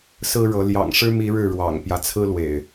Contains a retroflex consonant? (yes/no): yes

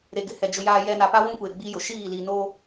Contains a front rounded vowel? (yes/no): no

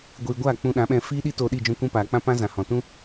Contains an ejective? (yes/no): no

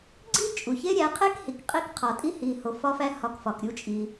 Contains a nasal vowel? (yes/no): no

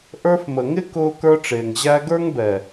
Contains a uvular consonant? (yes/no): no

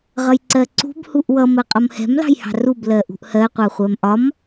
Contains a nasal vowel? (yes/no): no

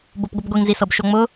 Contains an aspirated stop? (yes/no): no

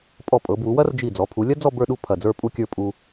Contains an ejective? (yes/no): yes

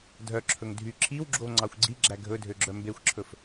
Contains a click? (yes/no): yes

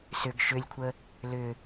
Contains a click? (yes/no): no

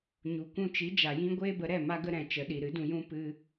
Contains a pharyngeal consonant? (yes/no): no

